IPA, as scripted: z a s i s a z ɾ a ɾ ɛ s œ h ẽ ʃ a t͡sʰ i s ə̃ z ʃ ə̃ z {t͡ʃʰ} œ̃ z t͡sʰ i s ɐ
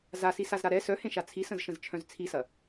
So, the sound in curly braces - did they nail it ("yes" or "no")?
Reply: yes